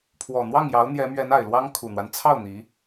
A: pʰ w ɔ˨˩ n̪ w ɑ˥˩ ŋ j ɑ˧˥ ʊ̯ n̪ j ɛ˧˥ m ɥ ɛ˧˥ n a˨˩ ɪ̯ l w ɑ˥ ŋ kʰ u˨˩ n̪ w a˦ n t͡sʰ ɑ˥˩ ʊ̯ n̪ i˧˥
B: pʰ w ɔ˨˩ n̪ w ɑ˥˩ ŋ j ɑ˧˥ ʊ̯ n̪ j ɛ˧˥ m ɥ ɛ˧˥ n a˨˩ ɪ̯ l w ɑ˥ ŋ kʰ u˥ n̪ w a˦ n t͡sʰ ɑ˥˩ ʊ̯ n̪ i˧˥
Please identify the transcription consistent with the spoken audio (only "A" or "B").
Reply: A